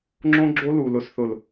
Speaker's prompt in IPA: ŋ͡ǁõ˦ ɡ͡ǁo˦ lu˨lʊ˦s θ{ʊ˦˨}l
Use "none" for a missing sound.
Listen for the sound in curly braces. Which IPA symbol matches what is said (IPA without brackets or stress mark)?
ʊ˦˨